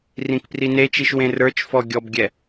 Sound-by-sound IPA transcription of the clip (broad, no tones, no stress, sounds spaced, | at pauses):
r ĩ k p r i n e t͡ʃ i ʃ w ẽ r ə˞ t͡ʃ f ɔ ɡʲ ɔ b ɡʲ ɛ